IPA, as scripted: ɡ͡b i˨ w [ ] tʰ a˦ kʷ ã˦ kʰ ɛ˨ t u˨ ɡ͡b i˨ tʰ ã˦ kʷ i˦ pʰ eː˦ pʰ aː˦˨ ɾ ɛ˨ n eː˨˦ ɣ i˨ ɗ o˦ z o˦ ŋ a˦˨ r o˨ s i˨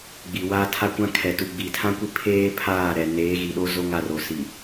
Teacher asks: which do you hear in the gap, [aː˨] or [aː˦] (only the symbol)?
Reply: aː˦